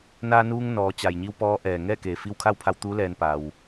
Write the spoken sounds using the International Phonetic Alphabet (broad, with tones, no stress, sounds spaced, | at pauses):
n aː˧ n uː˧ ŋ n ɔː˩˧ t͡ɕ a˩ j ɲ i˧ w p ɔː˧˥ ʔ ɛː˩ ŋ ɛː˥˨ k eː˩ f i˧ w kʰ a˥˨ w pʰ a˧ w t̪ uː˧˥ l ɛː˧ n p a˩ w